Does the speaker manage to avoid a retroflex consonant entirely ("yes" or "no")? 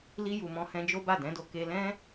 yes